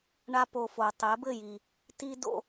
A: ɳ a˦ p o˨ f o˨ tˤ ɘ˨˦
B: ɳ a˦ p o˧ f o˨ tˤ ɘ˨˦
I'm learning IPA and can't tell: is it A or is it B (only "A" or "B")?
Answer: B